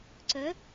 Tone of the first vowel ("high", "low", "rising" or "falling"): rising